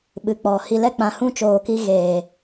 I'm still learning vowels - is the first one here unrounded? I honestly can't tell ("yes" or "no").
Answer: yes